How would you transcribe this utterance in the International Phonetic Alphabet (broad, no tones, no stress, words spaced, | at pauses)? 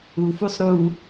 ufusˤ ɾu